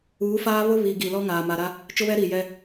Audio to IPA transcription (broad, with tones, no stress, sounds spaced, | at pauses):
uː˨˦ f aː˦ β ʊ˦ β i˨ ɡ i˨ l ɔ˦ ŋ aː˨ m a˨ ɾ a˦ | t͡ʃ ʊ˦ β ɛ˦ ɾ i˨ j ɛ˦